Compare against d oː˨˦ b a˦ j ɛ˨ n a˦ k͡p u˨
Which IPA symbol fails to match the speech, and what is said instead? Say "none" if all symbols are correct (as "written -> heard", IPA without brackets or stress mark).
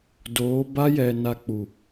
none